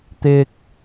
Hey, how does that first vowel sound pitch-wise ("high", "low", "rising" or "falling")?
low